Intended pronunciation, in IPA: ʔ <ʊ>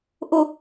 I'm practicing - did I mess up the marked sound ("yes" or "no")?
no